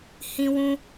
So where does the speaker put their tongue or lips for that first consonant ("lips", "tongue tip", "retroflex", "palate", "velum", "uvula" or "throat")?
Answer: throat